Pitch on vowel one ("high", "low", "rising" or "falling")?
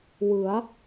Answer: rising